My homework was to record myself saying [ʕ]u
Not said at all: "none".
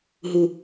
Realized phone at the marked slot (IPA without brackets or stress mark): ɦ